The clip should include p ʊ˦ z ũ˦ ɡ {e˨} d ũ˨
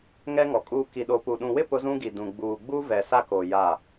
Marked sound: incorrect: i˨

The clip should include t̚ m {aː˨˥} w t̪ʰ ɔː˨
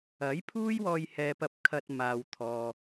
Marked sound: incorrect: aː˨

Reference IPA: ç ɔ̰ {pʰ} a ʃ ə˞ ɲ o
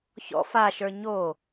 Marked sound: incorrect: f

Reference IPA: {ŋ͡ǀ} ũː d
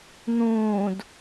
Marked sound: incorrect: n̪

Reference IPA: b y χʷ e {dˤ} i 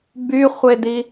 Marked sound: incorrect: d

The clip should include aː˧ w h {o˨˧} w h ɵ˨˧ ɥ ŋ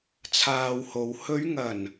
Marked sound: correct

